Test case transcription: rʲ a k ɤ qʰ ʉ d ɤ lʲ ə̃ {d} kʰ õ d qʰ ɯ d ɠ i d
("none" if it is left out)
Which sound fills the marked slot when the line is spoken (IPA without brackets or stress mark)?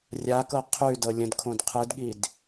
d